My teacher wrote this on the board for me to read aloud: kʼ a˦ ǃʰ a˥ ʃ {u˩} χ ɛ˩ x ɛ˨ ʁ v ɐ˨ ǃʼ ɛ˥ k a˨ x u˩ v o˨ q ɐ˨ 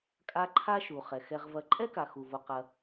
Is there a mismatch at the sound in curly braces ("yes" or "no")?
no